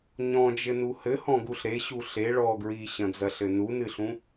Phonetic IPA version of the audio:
ɲ ɔ̃ d͡ʒ ɘ n u h ɘ h ɔ̃ ɡ u ɬ ɾ e ɕ u ɬ e ɭ ɔ ɡ ɹ i ɕ ɐ̃ d͡z ɐ ɬ ɘ n u n ɨ ɬ ũ

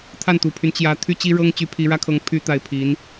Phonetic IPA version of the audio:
t̪ʰ a˥˩ n t̪ u˨˩ pʰ y˦ n t͡ɕ j ä˧˥ t̪ʰ y˥ t͡ɕ i˥ ɻ ɤ˥ ŋ t͡ɕ y˧˥ pʰ i˧˥ ɻ ä˥ kʰ ɤ˧˥ ŋ pʰ y˥ t̪ a˥˩ ɪ̯ pʰ i˧˥ n

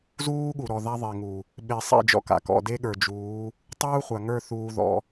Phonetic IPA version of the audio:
z uː˦ ɠ u˨ ɾ ɔ˨ ð a˦ ðˤ e˨ ŋ u˨ | ɓ e˨ sˤ ḛ˦˨ d͡ʒ ɔ̰˦ k a̰˨ k ɔ̰˨ d e˦ ɠ ə˞˨ d͡ʒ uː˨˦ | tˤ uː˦ χʷ a˨ ŋ ə˞˦˨ θ uː˦ ð ɔ̰˦

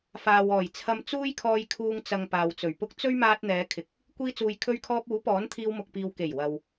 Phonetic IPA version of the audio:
f aː˨ w ɔː˨˩ j t͡sʰ ɐ˧ m t͡s uː˥ j kʰ ɔː˧ j kʰ uː˧ ŋ t͡s ɐ˨ ŋ p aː˨ w t͡s ɵ˨˩ ɥ p ʊ˥ k̚ t͡s ɵ˥ ɥ m aː˧ t̚ n̪ ɛː˨˧ kʰ ɪ˧ k̚ | kʷ iː˧ t͡s uː˨ j kʰ ɵ˧ ɥ kʰ ɔː˧ p̚ uː˨˥ p ɔː˨˥ n t̪ʰ iː˧ w m ʊ˨ k̚ p iː˨ w k e˨˩ j w ɐ˨ w

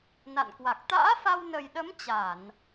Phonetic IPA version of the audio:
n a̰˧˨ n k w a˨˩ k̚ t̪ a̰ː˧˥ f a˧ w n ə˨˩ j ɗ ə˨˦ m t͡ɕ a˧˩˨ n

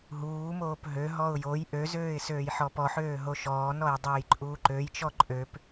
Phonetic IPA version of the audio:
ɦ uː m oː p ɦ ø ɦ ɔ ʊ̯ j o j ʔ ø z øː ɪ̯ s øː j ħ ɔ p ɔ ħ øː ɦ o ʃ ɔː n ɔ j dˤ øː j ǃʼ uː ǃ ø j t͡ʃ ɔ ǃʼ ø p

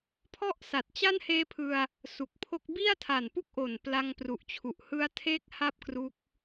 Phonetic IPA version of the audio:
pʰ ɔ˥˩ ʔ s a˨˩ t̚ t͡ɕ a˥˩ n h eː˦˥ pʰ ɯ˧ a̯ | s u˨˩ k̚ pʰ o˦˥ k̚ b i˥˩ a̯ tʰ a˨˩ n p u˥˩ k̚ ʔ o˨˩ n p l a˧ ŋ p r u˨˩ ʔ t͡ɕʰ u˨˩ ʔ h ɯ˦˥ a̯ tʰ eː˥˩ k̚ h a˥˩ p̚ k r u˦˥ k̚

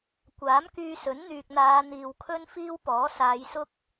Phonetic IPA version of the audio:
kʷ aː˨˥ m k yː˧ s ɵ˨˥ n n̪ yː˨ k̚ n̪ aː˨˧ n̪ iː˨ w kʰ ɵ˥ n f iː˥ w p ɔː˨˥ s aː˨˧ j s ʊ˥ k̚

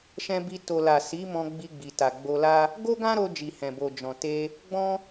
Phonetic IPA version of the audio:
ʃ ɛ̃˧ b i˧ t o˨ l a˨ s i˨˦ m ɔ̃˧ ɡ͡b i˧ ɡ͡b i˨ t a˨ ɡ͡b o˧ l a˦ | ɡ o˦ ɡ ã˦ ɾ o˧ d͡ʒ i˨ h ɛ̃˨ b o˨ d͡ʒ ɔ̃˨ t e˧ | ɡ͡b ɔ̃˦

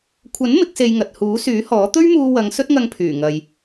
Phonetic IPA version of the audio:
kʷʰ ɐ˨˥ n m ɪ˨˥ k̚ s e˧ j ŋ ɐ˨ t̚ h uː˨˥ s yː˨˥ h ɔː˨˥ t̪ ɵ˥ ɥ m uː˧ w ɐ˨˧ ŋ s ɵ˥ t̚ ŋ ɐ˧ ŋ pʰ yː˨˩ ŋ ɐ˨ j

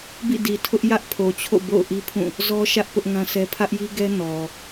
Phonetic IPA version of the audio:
b ḭ˦˨ d i˨ tʰ ʊ˦ ʔ j ä˦ ʔ pʰ o˨ t͡ɕʰ o̰˦˨ b o̰˦˨ ʊ̯ ʔ i˦ pʰ ũ˦˨ | z ɔ˦ ʃ ä˦ ʔ p ʊ˦ ʔ ŋ ã˦ sʰ ɛ˦ pʰ ä˦ ʔ j i˦ ɡ ɛ˦ n ɔ˨

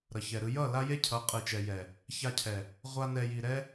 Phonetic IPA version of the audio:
ɾ ʌ˨ ç ɛ˨ ɾ ɯ˧ j ʌ˦˨ l a˦ j e˦ cʰ ʌ˨˦ qʼ ɯ˨ t͡ʃ ɛ˨ j ɛ˨ | ç a˧ cʰ ɛ˨ | ʁʷ a˦ n ɛ˧ j i˨ ɾ ɛ˦

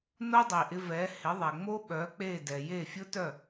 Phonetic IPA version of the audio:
n o˥ dˤ i˩ ʔ ɪ˧ v ɛ˩˥ h ɪ˩˥ ðˤ ɛ˩ ŋ͡m o˥ ɓ œ˩˥ k͡p e˥˩ d ɛ˩ j e˥˩ fʲ ʊ˥ t œ˥˩

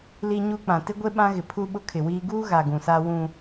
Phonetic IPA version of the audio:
l i˦ ɲ u˦ k͡p ã˨ t ɪ˦ ɡʷ e˦ ɓ ã˦ ɣ ɪ˨ pʰ u˦ ɓ ʊ˦ kʰ ɪ˨ w iː˦ ɡ uː˦ ɣ a˨ ɡ ũ˨ s a˦ w ũ˦

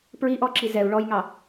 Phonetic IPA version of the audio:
p ɹ i ʔ ɔ ǁ i z ɛ u̯ ɭ ɔ j ŋ ɑ

